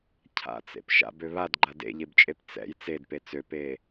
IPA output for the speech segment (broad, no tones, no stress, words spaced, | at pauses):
cʰa̰t͡sḛp ʃa̰bø βadɡ͡ǃa dḛʎebt͡ʃʼep t͡sɛ̰j t͡sedpe t͡søpeː